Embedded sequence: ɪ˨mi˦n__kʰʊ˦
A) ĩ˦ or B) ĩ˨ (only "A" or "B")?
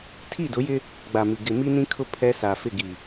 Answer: A